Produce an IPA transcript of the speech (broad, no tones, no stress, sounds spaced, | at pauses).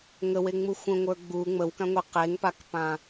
ŋ ə w e ŋ͡m u xʷ ə̃ ŋʷ ə˞ ɡ͡b u ŋ͡m ə w k ã ŋʷ e q e ŋ p a k p ã